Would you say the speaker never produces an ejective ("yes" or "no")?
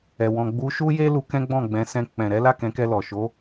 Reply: yes